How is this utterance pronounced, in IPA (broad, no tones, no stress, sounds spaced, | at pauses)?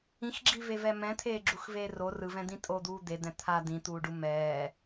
ĩ x ɡ͡ǁ i v e v ɛ m ɛ̃ t̪ʰ eː ɡ͡ǁ u x v eː r o r ɯ v ɛ̃ d̪ ĩ tʼ o d̪ uː d̪ e d̪ ɛ̃ t̪ʰ a d̪ ĩ t̪ uː ɖ u m ɛː